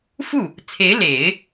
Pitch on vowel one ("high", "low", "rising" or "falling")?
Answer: falling